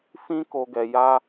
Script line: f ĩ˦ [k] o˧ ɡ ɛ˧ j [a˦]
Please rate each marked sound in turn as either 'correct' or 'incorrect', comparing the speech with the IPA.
correct, correct

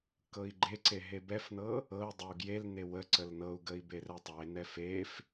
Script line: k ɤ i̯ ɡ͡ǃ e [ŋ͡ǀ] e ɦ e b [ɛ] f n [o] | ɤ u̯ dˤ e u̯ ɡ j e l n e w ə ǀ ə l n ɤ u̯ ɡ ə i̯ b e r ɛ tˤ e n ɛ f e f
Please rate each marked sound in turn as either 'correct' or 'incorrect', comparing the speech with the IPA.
incorrect, correct, incorrect

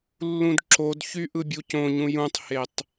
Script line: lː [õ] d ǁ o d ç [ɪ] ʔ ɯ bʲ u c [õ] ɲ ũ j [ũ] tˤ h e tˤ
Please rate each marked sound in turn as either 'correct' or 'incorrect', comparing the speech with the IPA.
incorrect, incorrect, correct, correct

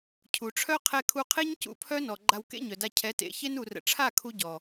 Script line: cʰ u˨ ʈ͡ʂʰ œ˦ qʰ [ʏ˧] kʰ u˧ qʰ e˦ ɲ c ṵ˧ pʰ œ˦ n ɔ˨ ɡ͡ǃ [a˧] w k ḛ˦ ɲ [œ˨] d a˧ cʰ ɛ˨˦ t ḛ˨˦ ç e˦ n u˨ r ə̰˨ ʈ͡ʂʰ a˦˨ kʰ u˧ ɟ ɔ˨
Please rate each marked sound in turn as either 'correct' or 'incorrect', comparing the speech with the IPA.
incorrect, correct, correct

